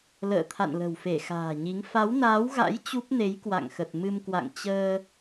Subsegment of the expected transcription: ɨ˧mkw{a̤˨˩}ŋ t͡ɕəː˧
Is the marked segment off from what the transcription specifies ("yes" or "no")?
yes